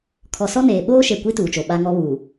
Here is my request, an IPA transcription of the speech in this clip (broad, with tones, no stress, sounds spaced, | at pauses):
kʰ ɔ˨ s ɔ˦ n eː˨ ɓ oː˦ ʃ e˨ kʷ i˦ t uː˨ t͡ʃ o˨ ɓ a˦ ŋ ɔ˦ β uː˨